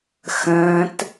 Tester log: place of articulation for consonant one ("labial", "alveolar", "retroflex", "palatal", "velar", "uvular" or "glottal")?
velar